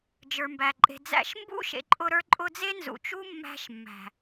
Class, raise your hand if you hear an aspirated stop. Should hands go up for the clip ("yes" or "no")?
no